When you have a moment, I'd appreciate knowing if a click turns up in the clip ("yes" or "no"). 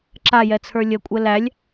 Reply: yes